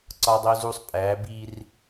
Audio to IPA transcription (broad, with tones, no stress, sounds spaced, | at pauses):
ǀ ɒ˨ dˤ o˨ z u˨ sˤ pʼ æ˨˦ b i˦ r